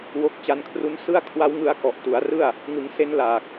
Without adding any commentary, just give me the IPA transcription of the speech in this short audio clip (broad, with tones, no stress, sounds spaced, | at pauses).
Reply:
w o˦˥ k̚ t͡ɕ a˧ n kʰ r u˦˥ n s ɯ˥˩ a̯ kʰ w a˦˥ w ŋ ɯ˦˥ a̯ k ɔ˨˩ ʔ t u˩˦ a̯ r ɯ˥˩ a̯ | ŋ ɯ˩˦ ŋ s e˦˥ n l aː˨˩ k̚